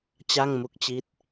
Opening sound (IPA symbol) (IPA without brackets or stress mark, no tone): t͡ɕ